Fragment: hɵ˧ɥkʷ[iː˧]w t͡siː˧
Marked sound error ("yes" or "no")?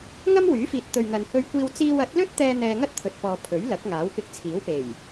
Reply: no